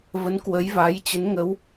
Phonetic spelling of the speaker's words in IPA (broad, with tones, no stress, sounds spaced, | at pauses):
v ə˨˦ n k w ə˨˦ j v aː˨˦ j t͡ɕ ə˨˦ n ŋ ə˨˦ w